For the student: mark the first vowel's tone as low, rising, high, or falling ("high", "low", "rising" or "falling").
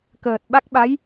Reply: low